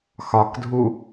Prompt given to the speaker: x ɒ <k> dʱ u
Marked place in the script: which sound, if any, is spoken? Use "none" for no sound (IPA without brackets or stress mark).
k